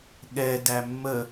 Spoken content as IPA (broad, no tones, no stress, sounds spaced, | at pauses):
ɠ ɛ d æ mː ə